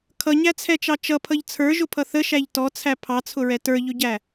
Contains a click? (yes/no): no